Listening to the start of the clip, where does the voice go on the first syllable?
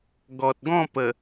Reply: low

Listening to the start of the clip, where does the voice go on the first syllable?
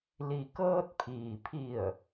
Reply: low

